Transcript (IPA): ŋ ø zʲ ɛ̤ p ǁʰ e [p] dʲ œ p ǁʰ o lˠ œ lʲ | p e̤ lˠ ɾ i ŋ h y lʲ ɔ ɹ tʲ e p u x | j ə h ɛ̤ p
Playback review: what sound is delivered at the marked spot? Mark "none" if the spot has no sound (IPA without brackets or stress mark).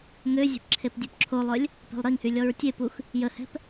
p